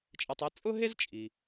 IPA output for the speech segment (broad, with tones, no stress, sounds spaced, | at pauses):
t͡ʃʼ ɛ˧ tˤ e˥ t͡sʼ ʊ˥ ɦ e˥ z t͡ʃʼ i˩